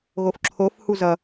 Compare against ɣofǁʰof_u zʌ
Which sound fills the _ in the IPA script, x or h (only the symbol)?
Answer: h